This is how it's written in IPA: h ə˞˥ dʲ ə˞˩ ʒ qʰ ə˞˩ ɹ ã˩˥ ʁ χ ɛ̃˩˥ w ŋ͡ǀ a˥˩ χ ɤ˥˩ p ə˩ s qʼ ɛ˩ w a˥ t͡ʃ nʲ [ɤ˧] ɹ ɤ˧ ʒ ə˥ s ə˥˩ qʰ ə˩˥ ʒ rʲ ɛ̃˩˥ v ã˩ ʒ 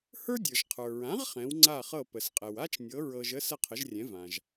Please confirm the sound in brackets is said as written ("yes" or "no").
no